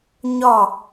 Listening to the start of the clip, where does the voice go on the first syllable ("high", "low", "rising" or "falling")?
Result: falling